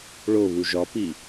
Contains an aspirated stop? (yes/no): no